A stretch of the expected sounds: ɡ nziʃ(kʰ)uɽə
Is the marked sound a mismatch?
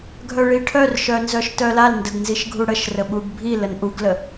yes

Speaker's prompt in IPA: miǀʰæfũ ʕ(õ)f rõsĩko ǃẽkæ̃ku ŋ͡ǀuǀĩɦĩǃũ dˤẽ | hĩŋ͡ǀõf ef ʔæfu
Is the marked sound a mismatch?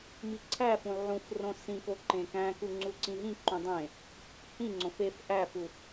yes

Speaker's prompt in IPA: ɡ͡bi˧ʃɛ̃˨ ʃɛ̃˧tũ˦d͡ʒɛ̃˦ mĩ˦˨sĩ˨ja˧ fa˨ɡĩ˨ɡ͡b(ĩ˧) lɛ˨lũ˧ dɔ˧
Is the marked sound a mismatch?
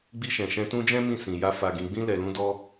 no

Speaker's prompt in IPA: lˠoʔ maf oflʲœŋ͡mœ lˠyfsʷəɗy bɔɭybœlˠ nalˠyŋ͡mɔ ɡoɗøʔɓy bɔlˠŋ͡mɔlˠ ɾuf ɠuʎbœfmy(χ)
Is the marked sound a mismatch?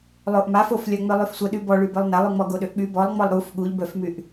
yes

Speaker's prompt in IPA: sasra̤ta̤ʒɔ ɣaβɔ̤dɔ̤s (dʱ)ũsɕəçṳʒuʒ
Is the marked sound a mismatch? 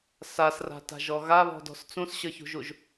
yes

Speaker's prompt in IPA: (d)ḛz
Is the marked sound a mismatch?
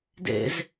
no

